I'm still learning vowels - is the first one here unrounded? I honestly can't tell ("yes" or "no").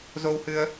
no